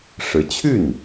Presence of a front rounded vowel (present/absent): present